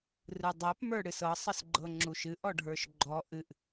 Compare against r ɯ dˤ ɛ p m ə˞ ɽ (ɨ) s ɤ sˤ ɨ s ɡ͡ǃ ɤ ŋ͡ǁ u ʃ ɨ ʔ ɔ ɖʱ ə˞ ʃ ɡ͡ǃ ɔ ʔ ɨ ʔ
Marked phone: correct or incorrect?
correct